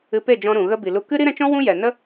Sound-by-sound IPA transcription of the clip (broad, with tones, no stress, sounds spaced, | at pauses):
ɨ˧ p e˦˨ d͡ʒ ɔ̃˧ ɾ ũ˨ ɣ ə˧ b i˨ l u˧ k ɨ˦ ɾ i˦ ɾ ɛ̃˧ t͡ʃ ɔ̃˦ w ũ˦ j ɛ˨ n ə˦